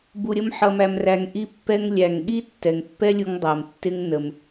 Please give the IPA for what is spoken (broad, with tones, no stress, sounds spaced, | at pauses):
b u˧ ɾʲ ə˦ m ħ ʌ˧ m æ˧ m r æ˧ ŋ ʔ i˦ pː ɛ˦ ŋ lʲ æ˨ ŋ ɠ i˦ tː ɛ˨ ŋ pː ɛ˦ lʲ u˧ ŋ dˤ ɜ˨ m tː ɪ˦ ŋ n ə˨ m